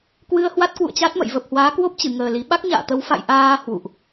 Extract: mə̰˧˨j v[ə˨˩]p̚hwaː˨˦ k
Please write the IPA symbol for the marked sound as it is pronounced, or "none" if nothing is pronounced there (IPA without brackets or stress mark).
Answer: ə˨˩